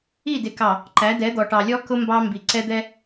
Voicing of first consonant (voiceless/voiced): voiced